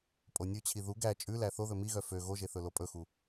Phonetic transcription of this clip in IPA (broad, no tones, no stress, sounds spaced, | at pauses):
pʼ o nʲ ʉ t͡ɕʰ i ð u ɡ æ t͡ʃʼ ʉ l æ θ o ð ɵ m i ɣ œ f ø ɣ o ʒ e θ ɵ l o pʼ ɵ x u